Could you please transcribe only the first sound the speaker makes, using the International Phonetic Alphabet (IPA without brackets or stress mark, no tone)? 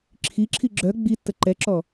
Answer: ǁʰ